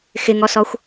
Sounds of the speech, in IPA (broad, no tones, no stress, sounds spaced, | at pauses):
x ɪ ŋ ɔ s ɔ xʷ